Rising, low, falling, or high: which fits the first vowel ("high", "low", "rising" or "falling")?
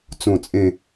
falling